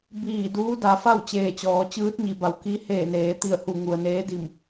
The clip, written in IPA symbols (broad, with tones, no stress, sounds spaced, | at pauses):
b iː˧˩ d uː˧˥ d a˩˧ f a˥˨ w t͡ɕ eː˧˩ t͡ɕ ɔː˩˧ t͡ɕ ɯː˧˥ t̚ ɲ i˩ b a˩ w k i˧˥ h eː˧˩ n eː˩˧ t̪ i˧˩ ə̯ h u˧˩ ŋ u˩ ə̯ n eː˧˥ d i˧˩ m